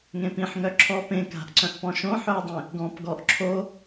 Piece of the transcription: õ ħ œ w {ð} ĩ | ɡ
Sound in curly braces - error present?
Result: yes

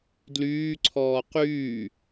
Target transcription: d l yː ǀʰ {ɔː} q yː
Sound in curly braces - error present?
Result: no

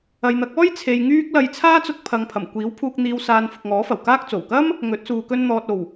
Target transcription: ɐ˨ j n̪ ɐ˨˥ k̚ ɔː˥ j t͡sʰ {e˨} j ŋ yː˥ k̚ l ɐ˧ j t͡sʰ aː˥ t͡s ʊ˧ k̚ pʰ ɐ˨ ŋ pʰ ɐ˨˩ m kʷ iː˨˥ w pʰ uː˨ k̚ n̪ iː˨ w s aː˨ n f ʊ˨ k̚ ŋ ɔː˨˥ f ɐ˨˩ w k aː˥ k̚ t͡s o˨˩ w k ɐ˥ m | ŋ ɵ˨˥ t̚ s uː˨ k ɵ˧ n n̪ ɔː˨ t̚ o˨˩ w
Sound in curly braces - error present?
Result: no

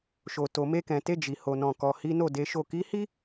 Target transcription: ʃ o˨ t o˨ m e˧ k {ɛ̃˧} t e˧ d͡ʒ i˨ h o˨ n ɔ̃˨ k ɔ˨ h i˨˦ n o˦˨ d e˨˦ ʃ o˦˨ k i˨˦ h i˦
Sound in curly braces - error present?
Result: yes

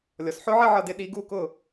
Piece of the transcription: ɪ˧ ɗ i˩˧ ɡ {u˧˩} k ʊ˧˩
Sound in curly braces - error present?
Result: no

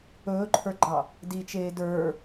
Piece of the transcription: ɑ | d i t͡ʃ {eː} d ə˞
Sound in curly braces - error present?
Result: no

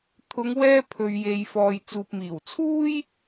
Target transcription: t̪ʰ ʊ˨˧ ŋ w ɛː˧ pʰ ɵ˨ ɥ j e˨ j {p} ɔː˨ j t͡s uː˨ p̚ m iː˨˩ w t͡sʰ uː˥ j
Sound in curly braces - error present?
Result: yes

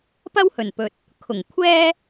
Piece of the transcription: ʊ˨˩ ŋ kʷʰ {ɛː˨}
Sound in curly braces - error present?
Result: yes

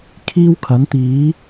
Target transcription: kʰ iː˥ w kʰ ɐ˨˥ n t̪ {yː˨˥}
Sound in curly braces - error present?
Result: yes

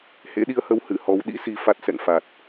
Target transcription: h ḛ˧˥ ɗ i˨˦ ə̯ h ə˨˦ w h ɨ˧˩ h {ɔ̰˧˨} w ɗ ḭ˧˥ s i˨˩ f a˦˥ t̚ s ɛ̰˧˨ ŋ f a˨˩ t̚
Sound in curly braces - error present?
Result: yes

